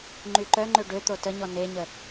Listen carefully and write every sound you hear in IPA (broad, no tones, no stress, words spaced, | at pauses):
ŋ͡ǃyǃœŋ͡ǃø ɖø t̪otəɲɔ neɲə